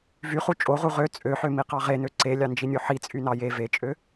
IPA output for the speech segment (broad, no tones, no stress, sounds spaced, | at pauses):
v y χ u t͡ʃʼ o ʁ u ʁ ø t͡sʼ ø ħ ø m i q ɑ ʁ e n ø ǀ e lʲ ɑ n d͡ʒ i nʲ o ħ i t͡sʼ y n ɑ j e v e t͡ʃʼ ø